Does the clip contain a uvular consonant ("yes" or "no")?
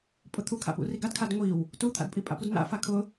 no